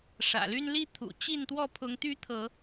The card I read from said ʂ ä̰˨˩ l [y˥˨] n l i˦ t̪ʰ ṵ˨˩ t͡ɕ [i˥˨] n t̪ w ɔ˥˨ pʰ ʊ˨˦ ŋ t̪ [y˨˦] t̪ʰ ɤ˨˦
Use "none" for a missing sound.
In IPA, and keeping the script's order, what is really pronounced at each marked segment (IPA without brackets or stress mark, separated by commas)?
y˦, i˥˨, y˦